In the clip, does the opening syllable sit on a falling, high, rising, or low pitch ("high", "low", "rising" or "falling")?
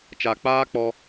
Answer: low